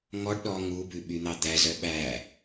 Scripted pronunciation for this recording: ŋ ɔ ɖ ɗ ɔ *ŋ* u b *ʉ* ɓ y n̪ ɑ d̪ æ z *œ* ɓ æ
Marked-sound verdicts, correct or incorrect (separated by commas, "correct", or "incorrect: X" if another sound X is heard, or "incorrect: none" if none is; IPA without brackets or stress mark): correct, correct, correct